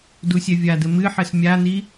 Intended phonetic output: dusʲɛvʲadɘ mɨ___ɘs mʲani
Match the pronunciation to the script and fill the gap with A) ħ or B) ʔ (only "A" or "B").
A